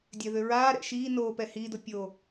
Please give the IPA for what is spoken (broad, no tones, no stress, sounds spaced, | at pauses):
dʲ ɛ ð ʏ ɹ aː ɾ ɛ̰ ʃ iː n oː p ɛ h iː d o pʲ o